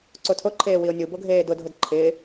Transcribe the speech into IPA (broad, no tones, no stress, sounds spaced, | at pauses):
ǀ o tʰ o ǃʰ eː w i o̯ nʲ u b o ɡʱ eː d ʊ dʱ ʊ d ǃʰ ɪː